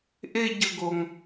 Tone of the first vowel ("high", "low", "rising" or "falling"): high